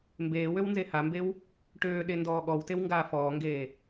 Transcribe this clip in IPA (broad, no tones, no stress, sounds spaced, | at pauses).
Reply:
m b eː w ø w n z e h a m b e w | ʈ øː ɗ e n d ɔː ɠ ɔ w t e w ŋ ɡ aː f ɔː ŋ ɡ eː